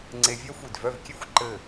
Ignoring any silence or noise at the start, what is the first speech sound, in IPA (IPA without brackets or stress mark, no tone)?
ŋ͡ǀ